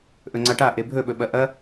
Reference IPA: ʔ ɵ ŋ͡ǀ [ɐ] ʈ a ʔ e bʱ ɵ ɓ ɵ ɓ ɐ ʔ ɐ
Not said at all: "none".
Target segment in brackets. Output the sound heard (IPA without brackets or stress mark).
a